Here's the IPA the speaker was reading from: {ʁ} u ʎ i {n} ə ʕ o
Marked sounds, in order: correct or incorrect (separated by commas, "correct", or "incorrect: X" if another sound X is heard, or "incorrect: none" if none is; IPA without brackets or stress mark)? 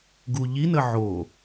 incorrect: ɡ, correct